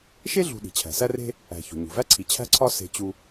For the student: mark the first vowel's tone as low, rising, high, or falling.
high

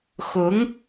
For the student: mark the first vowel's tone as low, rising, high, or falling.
rising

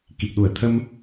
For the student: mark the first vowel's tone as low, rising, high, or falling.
low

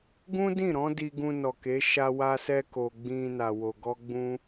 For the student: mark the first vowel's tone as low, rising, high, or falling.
high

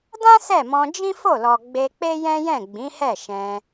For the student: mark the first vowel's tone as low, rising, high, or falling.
high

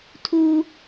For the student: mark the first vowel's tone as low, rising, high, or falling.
high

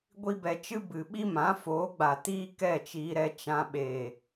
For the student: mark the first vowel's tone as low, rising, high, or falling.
high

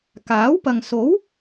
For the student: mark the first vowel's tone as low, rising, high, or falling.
rising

